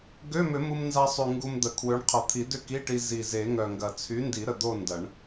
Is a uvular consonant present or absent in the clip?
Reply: present